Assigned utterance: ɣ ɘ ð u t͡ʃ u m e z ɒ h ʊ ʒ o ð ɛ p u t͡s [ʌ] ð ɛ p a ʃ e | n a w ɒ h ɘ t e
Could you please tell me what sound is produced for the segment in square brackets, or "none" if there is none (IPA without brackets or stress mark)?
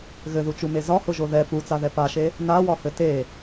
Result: a